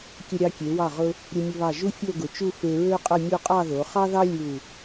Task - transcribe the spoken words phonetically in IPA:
kʲə˧ɾʲɑ˧ kʲe˩˧wɑ˧˩ʁʊ˧ | ɾʲʊ˧mʲʊ˧βɑ˧˩ ʒu˥fʲo˥˧ɡʊ˩˧t͡ʃu˥˧ fe˧ɹø˥qʼə˥˧ mʲu˥˧ qʼɑ˥˧ðo˩˧ χɑ˥ðɑ˥ lʲu˧˩

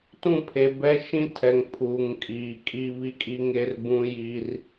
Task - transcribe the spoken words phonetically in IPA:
tũ˦˨pʰe˨bɛ˦ ʃĩ˦tʰɛ˨ŋ pʰuː˨ŋkʼiː˨kʼi˦ βi˦kʼi˦ŋe˦rbũ˦ ji˦r

